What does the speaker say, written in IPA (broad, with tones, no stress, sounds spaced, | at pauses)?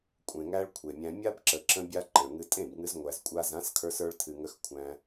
kʷʼ ẽ˨ ŋ æ˧ ɭ kʷʰ e˨ mʲ æ̃˧ mʲ a˦ b ǁ ə˨ ǁ ə̃˧ bʲ a˦ ǃ ə̃˨ ɭ ŋ ɨ˧ tʼ ẽ˦˨ b ŋ ɨ˧ z ŋʷ æ˨ z kʷʼ a˧ z ã˨˦ s kʰ ə˞˧ s ə˞˧ ɭ tʰ ɨ˨ ŋ ə˧ x kʷʰ æ̃˧